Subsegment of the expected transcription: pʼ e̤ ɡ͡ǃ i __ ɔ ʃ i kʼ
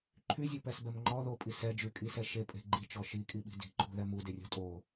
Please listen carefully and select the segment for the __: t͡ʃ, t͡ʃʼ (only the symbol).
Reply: t͡ʃ